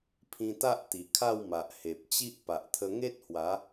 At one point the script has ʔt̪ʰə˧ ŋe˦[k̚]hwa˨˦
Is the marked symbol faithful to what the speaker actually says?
no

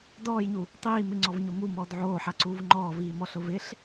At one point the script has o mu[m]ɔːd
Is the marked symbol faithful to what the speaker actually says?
yes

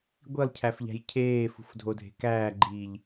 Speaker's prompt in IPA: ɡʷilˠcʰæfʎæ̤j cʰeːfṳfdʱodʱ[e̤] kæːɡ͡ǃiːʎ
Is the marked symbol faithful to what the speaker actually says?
yes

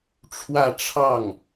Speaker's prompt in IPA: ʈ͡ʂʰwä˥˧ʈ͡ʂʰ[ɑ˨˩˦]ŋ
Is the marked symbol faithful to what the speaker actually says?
no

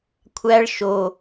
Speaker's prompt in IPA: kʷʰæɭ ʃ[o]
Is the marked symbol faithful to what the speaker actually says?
yes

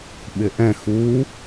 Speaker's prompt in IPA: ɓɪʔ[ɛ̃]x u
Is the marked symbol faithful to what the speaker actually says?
yes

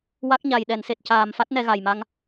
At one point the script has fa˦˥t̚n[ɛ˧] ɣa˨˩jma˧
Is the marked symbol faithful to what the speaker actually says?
yes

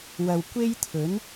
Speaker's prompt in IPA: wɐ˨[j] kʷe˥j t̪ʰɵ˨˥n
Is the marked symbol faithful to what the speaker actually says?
no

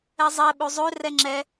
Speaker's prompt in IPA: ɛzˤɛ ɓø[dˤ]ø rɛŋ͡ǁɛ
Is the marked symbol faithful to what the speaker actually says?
no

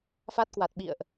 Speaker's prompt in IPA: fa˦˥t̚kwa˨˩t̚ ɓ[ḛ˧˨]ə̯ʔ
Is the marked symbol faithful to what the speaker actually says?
no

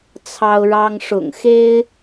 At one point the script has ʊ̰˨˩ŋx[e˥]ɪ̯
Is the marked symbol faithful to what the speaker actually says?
yes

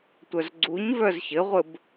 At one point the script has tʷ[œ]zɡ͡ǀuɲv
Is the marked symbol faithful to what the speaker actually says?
yes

